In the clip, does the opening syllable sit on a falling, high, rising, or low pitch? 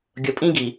low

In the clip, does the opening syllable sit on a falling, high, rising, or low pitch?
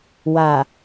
low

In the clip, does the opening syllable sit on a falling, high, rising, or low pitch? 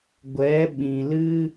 rising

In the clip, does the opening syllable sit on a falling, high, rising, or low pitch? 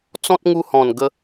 high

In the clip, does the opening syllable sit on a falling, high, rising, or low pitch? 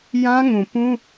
high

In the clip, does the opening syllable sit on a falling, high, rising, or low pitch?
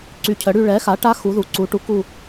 rising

